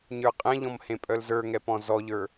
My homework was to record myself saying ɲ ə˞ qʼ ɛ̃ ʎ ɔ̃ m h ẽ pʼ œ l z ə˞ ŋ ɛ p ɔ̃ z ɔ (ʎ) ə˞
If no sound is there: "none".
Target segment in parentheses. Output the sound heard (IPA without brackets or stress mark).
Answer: ʎ